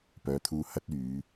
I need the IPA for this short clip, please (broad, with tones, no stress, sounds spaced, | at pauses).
p œː˨˧ t̪ʰ uː˧ h ɐ˥ t̚ yː˨˧